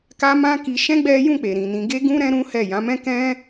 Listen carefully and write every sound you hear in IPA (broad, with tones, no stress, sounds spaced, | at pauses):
k a˦ m ã˦ k i˧ ʃ ɛ̃˦ ɡ͡b ɛ˦ j ũ˦˨ k͡p e˨ ɾ ĩ˨ n ĩ˧ ɡ e˦ ɡ ũ˦ ɾ ɛ̃˦ ɾ ũ˦ h ɛ˦˨ j ã˨˦ m ɛ̃˦ k ɛ̃˦